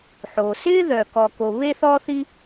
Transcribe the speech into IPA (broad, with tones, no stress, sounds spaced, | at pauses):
ħ o˩ s ɪː˥ ð œ˩ k ɔ˩ k o˩ β e˥ θ ɔ˥ θ i˥